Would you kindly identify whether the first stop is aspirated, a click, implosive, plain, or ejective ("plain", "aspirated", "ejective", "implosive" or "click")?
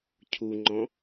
aspirated